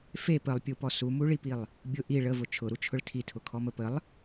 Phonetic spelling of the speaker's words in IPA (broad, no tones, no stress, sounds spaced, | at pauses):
f e p ə lˠ pʲ u p ɔ s u m u ɭ i p i lˠ | bʲ ʊ ʔ i ɭ ə v ʊ t͡ʃʰ ʊ ɾ u t͡ʃʰ ʊ ɭ tʰ i tʰ ʊ kʰ ɔ m ə p ə lˠ